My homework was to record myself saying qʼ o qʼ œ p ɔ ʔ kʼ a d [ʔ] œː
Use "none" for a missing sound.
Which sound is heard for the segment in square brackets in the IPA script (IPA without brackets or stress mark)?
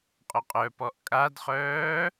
χ